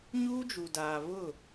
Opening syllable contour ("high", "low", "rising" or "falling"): high